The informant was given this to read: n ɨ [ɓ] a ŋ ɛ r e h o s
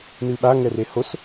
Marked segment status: correct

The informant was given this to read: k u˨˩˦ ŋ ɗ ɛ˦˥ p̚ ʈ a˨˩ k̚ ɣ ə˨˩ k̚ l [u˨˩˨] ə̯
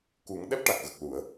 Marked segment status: correct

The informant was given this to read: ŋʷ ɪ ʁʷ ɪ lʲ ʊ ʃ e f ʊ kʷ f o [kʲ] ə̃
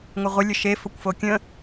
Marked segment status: correct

